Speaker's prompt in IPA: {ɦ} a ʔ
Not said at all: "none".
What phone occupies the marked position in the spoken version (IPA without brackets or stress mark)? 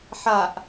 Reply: ħ